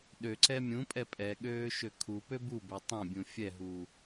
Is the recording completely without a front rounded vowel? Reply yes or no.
no